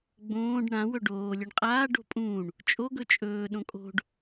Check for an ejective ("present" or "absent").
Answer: present